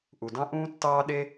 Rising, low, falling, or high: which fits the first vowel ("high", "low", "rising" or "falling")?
low